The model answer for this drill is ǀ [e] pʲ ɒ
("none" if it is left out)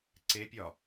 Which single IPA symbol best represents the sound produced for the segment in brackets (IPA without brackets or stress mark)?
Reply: e